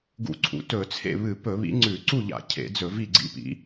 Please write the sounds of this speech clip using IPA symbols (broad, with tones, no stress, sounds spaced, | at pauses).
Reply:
ɡ ṵ˧˩˧ ǀʰ ṵ˨˦ t ɵ˧˩˧ t͡sʰ ḛ˥˨ β ɨ˧˩˧ p ɵ˧˩˧ β ḭ˨˦ ŋ͡ǀ ʉ˧˩˧ ǀ u˥˨ ʎ a̰˧˩˧ cʰ ḛ˧˩˧ d͡z ɵ˧˩˧ v i˥˨ ɡ͡ǀ ḭ˥˨ p ḭ˨˦